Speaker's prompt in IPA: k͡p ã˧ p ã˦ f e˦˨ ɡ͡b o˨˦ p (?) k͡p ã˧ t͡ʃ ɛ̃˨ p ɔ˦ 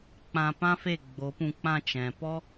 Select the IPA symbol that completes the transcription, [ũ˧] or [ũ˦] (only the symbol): ũ˧